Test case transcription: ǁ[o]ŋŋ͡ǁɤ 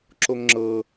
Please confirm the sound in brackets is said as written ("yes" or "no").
yes